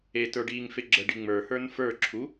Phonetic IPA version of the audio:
e t ə˞ ɖ iː ŋ f e ɡ͡ǁ ə ɖ i ŋ͡m ə˞ h ə˞ n f ə˞ ǁʰ u

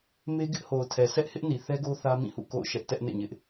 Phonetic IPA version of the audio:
m e˦ ɡ ɪ˦ ʔ h o˨ ʊ̯ tʰ ɛ˨ s ɛ˦ ʔ h ɪ˦ ʔ n i˨ θ ɛ˦ ɡ o˦ θ ä˦ m ĩ˦˨ h ṵ˦˨ k o̰˦˨ ʊ̯ ʃ ɛ˦ ʔ t ɛ˦ ʔ n ḛ˦˨ ɲ ɪ˦ ʔ

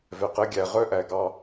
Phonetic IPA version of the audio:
v ɛ˨ q ɛ˧ ɡʲ æ˨ ʁ œ˦ ʔ æ˨ ɡ ɑ˧

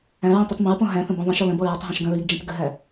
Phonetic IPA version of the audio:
æ̃ ɹ ĩ tˤ i tˤ m ə̃ ɹ p ɔ̃ ɦ æ̃ θ ə̃ b ɔ̃ ðˤ ə̃ ʃ ɔ l ə̃ b ɔ ɹ ɔ tˤ ɦ ɔ̃ ʃ ɡ ə̃ ɹ i ɡ d͡ʒ ĩ t ɡ ə ɦ æ

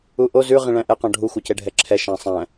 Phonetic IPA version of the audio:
u ʔ o z ʉ ʁ ĩ ɭ æ̃ ʔ ɛ q ɔ̃ ɖʱ u xʷ œ c e ɖʱ ɛ ǁʰ ɛ ʃ æ̃ sˤ æ̃

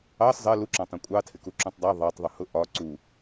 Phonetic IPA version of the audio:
ɑ s zˤ ɜ l u ǁ ɑ̃ tˤ ũ kʷʼ ɑ tʰ ɪ k u ǁ ũ tˤ dˤ ɑ ðˤ ɑ tˤ ðˤ u h ʊ ʔ ɒ ǀ u

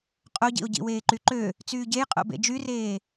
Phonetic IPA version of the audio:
qʼ o ɟ ḭ o̯ ɟ ḭ w eː ǃ y ǃ ø | t͡s yː ɟ e j qʼ o̰ b ḛ d͡ʒ y r eː

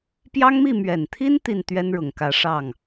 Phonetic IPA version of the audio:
p j ɑ˥ ŋ m i˥˩ m ɥ ɛ˨˩ n t̪ʰ i˥ n t̪ i˥˩ n t̪ ɥ ɛ˥ n ɻ ʊ˨˩ ŋ k ä˧˥ ʂ ɑ˥˩ ŋ

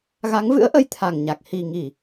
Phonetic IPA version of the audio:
ɣ a˨˦ ŋ v ɨ̰˧˥ ə̯ ʔ ə˨˦ j t̪ʰ a˨˩ ŋ ɲ a˨˩ k̚ h i˨˩ ŋ i˧˩˨

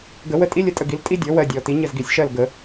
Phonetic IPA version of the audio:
ɡ ə˨˩˦ w ə˦˨ tʼ i˥ lʲ ə˦˨ tʼ ə˦˨ ɡ i˩˥ l tʼ i˥ dʲ ɔ˩˥ w ɜ˦˨ dʲ ɔ˨˩˦ t i˩˥ ɲ ə˦˨ z ɡ i˨˩˦ sʲ ʃ ɜ˦˨ l ɡ ə˨˩˦

